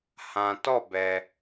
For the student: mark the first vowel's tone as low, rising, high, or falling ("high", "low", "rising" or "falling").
low